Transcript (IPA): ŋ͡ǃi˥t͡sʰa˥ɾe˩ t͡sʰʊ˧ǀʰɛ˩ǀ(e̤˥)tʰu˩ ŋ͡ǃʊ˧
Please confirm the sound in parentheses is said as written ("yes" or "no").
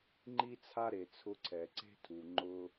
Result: yes